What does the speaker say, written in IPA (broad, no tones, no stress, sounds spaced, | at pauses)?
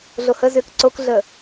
ɮ o h ə z ʏː k ǀ o k ɮ ə